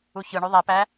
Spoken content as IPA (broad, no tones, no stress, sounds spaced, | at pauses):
u ç ɯ ɳ y ðˤ e p æ